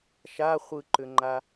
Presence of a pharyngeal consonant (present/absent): absent